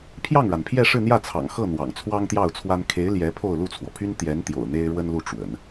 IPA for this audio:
pʰ j ɑ˥˩ ŋ ɻ a˩ n pʰ j ɛ˥˧ ʂ ɻ̩˥˧ n̪ j ä˥˩ t͡sʰ ɑ̰˨˩ ŋ x ɤ˥˩ n̪ w ɑ̰˨˩ ŋ t͡sʰ w ɑ˥ ŋ t̪ j ɑ˥˩ ʊ̯ t͡sʰ w a˥ n kʰ e˧˥ ɪ̯ l j ɛ˧˥ pʰ o˥˧ ʊ̯ l u˥˩ t͡sʰ w ɔ˩ pʰ y˥ n t̪ j ɛ˧˥ n t̪ j o̰˨˩ ʊ̯ n̪ e˥ ɪ̯ ɻ w ə˥ n l u˥˩ ʈ͡ʂ w ə̰˨˩˦ n

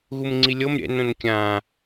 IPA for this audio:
ɣ u m ŋ͡ǀ i lʲ ɤ m ɾʲ ɛ̰ n õ n kʲ ã

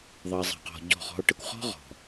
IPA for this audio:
ðˤ ə˨ e̯ zˤ ɛ̤˨ q ɔ̤˨ ɟ ɔ̤˦˨ χ ɔ̤˦ o̯ ʈ ə˦ kʷ χ ɔ̤˦ ʁ ɔ̤˨

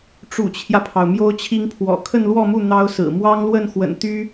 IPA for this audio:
ʈ͡ʂ ṵ˨˩ t͡ɕʰ j ä˦ pʰ ɑ˩ ʊ̯ m j o˥ ʊ̯ t͡ɕʰ i˥ ŋ pʰ w ɔ̰˨˩ kʰ ə˥˧ n l w ɔ˥˧ m u˥˩ n̪ ɑ˥ ʊ̯ s ɹ̩˨˩ m w ɑ˥ ŋ l w ə˥˩ n x w ə̰˨˩ n t̪ y˥

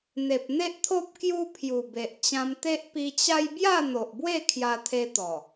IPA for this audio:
n̪ e˨ p̚ n̪ e˦ ʔ t̪ʰ o˦ p̚ k j u˦ pʰ j u˨˩ b e˨ ʔ t͡ɕ ã˧ m t̪ e˦ ʔ p i˧ t͡ɕ a˦ j b j a˥˧ n̪ o˨ ʔ b w e˥˧ kʰ j a˦ t̪ʰ e˦ t̪ ɔ˨˩

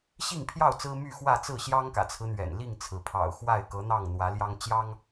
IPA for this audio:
ɕ i˥˨ ŋ pʰ j ɑ˥˨ ʊ̯ t͡s ɹ̩˦ m y˥˨ x w ä˥˨ t͡s ɹ̩˥˨ ɕ j ɑ˦ ŋ k ä̰˨˩ t͡sʰ ɹ̩˦ n̪ ɥ ɛ̰˨˩ n l i˥˨ ŋ t͡sʰ ɹ̩˩ pʰ ɑ̰˨˩ ʊ̯ x w a˥˨ ɪ̯ k ɤ˨˦ n̪ ɑ˥˨ ŋ n̪ w ä˨˦ l j ɑ˦ ŋ t͡ɕ j ɑ˦ ŋ

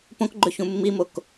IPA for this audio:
p õ k ɡ͡ǃ ɵ ç ũ mː i m o k

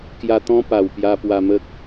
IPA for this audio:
k j a˧ t̪ ɔ̃˦ p a˨˩ w p j a˧ p w a˧ m ə˦ k̚

